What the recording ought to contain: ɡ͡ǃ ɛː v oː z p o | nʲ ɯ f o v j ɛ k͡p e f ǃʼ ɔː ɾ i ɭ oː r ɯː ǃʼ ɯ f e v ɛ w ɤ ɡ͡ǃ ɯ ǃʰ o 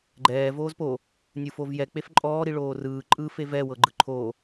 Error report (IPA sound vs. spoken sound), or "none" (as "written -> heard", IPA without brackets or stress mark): none